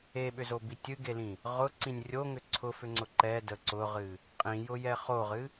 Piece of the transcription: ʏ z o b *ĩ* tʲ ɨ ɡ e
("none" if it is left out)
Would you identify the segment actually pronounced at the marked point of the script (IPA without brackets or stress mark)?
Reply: i